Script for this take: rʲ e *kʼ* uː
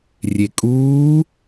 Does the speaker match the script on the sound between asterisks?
yes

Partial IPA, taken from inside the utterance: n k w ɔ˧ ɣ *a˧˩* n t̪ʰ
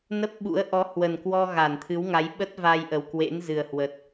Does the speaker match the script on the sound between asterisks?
yes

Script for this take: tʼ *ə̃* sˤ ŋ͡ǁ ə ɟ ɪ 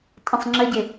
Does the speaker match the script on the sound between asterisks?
yes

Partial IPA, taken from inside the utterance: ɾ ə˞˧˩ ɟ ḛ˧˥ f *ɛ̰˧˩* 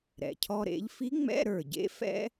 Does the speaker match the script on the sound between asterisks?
no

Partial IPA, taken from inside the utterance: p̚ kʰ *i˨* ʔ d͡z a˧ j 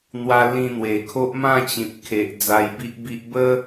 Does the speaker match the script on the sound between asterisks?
no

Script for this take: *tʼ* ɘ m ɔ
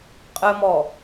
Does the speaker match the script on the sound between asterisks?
no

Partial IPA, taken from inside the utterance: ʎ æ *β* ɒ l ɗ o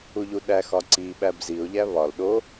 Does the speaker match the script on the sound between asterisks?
yes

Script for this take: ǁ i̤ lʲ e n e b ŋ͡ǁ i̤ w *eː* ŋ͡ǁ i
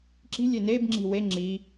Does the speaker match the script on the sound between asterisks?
no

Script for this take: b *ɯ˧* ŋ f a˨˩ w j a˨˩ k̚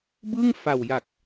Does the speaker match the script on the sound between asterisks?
no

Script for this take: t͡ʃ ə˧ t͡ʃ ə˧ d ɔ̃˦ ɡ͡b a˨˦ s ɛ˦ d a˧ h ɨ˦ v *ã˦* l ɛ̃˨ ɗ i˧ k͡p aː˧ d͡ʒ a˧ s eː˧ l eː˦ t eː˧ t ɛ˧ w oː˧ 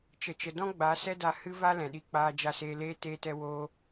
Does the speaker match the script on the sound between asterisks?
no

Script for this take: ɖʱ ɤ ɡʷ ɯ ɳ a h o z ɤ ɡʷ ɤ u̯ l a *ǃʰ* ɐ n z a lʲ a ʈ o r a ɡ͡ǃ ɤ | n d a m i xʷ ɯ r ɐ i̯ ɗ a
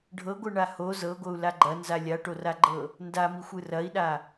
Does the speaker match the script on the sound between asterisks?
no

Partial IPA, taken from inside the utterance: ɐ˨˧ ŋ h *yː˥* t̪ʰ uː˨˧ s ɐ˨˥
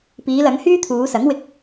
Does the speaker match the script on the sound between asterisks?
yes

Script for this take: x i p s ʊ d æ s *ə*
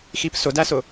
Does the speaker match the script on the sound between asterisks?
no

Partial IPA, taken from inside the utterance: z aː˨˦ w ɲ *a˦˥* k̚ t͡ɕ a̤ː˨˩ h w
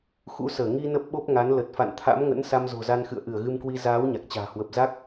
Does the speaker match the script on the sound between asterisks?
no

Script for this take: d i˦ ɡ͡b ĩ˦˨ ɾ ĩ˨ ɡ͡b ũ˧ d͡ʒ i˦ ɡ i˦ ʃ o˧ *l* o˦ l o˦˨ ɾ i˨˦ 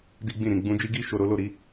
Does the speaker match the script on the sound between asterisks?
no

